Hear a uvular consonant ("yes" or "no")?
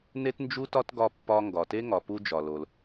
no